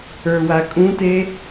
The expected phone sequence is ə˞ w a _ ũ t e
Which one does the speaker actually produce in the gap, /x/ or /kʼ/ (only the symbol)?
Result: kʼ